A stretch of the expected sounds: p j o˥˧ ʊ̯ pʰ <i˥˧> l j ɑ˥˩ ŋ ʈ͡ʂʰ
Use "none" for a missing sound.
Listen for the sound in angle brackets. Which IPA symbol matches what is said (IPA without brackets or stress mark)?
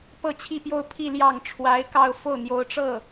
i˥˧